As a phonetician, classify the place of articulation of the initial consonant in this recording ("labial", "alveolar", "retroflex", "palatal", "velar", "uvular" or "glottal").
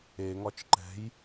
velar